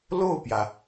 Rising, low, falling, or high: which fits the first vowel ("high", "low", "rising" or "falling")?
falling